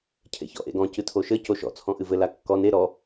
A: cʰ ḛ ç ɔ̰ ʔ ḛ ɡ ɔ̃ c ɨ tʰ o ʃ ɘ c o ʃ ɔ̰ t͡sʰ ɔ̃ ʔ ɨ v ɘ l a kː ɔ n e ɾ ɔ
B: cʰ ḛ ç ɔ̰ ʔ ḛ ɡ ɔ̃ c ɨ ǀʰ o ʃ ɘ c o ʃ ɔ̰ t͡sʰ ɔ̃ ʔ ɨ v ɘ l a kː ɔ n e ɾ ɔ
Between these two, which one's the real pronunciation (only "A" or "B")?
A